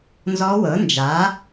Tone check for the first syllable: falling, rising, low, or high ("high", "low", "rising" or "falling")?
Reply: rising